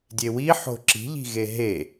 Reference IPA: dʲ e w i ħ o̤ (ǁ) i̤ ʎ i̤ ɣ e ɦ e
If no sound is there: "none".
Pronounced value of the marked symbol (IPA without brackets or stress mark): ǁ